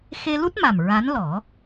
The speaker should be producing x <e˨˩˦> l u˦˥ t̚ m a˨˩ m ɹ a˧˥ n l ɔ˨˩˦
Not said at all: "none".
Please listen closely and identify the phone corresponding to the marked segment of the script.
e˧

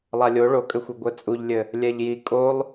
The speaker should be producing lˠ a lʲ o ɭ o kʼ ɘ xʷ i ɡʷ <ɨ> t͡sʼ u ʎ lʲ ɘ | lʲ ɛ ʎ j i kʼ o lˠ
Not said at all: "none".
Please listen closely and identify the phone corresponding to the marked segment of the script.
ɛ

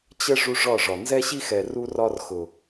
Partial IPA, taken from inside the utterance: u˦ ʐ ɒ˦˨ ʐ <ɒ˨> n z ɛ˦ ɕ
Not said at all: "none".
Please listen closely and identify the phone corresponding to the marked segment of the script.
ɒ˨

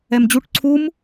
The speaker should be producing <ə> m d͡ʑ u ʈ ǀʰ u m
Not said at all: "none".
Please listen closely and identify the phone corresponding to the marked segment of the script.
ɛ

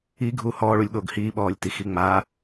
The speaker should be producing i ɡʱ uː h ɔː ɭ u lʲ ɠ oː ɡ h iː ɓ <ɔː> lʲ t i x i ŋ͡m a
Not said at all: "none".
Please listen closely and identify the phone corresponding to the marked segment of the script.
ɔː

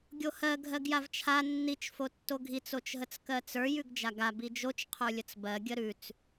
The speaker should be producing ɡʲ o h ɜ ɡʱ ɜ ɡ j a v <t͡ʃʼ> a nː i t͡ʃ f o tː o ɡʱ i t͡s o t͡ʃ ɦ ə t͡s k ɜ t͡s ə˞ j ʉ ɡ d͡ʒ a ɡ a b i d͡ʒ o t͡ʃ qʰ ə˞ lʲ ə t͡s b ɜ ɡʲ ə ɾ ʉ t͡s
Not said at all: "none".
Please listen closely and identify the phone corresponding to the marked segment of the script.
t͡ʃʰ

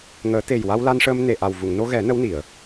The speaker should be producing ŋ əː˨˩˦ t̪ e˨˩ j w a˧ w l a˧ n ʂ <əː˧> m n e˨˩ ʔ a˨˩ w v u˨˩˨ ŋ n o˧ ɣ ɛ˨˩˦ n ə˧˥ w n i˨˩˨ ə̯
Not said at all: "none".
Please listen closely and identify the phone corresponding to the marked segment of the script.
əː˧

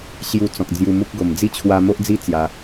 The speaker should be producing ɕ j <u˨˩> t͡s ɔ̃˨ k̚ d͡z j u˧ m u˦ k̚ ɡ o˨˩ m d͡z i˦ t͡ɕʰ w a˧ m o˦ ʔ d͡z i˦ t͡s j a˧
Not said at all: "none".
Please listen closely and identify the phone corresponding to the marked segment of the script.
u˧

